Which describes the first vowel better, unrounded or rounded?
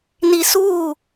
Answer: unrounded